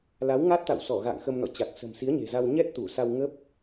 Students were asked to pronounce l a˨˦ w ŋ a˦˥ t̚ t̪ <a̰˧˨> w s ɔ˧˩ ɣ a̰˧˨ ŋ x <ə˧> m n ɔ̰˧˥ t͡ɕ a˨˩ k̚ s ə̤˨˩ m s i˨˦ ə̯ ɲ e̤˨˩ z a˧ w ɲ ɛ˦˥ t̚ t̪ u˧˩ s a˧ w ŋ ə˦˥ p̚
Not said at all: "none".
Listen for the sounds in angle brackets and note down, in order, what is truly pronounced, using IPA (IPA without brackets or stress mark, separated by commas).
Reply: a̰˧˨, ə˧